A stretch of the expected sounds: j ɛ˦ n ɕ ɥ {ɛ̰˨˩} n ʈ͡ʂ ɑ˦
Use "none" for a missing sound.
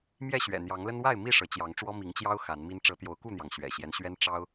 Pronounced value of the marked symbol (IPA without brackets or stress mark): ɛ˦